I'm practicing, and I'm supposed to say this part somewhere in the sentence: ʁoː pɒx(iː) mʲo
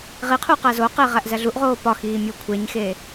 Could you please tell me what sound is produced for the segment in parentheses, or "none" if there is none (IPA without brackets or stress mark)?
iː